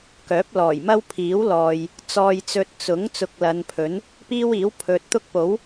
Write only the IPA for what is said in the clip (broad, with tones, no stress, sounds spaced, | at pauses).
k œː˨˥ p̚ l ɔː˨˩ j m ɐ˥ w pʰ iː˨˥ w l ɔː˨ j | t͡s ɔː˧ j t͡s ɵ˧ t̚ t͡s ʊ˨˥ ŋ t͡s ʊ˧ k̚ l ɐ˨˧ n pʰ ɵ˨˥ n | p iː˥ w iː˨˥ w pʰ ɵ˨ t̚ t̪ ʊ˥ k̚ p o˨˥ w